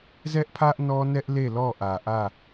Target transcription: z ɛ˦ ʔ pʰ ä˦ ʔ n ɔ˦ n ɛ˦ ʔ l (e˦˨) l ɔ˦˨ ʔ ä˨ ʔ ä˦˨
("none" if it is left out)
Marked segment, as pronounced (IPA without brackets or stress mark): e˦˨